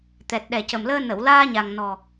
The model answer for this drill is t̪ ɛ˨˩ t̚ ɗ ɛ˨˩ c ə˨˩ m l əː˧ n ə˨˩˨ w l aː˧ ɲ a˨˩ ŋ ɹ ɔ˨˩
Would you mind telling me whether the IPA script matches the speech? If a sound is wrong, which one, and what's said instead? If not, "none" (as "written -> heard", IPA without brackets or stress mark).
ɹ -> n